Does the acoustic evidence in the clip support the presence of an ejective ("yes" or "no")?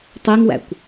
no